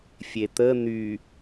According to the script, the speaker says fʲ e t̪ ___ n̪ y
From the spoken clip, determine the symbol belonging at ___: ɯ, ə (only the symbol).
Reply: ə